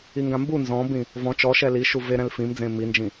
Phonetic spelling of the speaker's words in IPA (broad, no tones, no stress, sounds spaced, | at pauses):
i ŋ ɡ ã m b u n z ɔ̃ b ĩ | v ɔ̃ t͡ʃ ɔ ʃ ɛ l i ʃ u v e ɾ ɛ̃ l f ĩ m d͡z ẽ m i n d͡ʒ ĩ